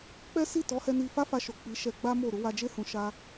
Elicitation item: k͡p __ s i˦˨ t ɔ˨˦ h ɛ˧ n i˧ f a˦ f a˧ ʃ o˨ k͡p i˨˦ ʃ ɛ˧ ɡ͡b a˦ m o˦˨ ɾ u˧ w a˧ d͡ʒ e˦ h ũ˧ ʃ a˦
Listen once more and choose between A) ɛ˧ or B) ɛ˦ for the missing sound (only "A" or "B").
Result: B